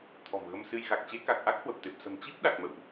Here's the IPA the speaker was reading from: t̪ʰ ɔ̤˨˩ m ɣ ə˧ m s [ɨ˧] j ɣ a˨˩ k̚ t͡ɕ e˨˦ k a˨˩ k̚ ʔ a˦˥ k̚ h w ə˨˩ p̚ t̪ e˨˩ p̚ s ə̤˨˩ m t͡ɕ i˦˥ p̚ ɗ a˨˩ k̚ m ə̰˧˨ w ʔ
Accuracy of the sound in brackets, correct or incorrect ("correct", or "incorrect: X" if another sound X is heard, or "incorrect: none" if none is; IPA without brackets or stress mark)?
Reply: correct